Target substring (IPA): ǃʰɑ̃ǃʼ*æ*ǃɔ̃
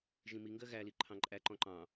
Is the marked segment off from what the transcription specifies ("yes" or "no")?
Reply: no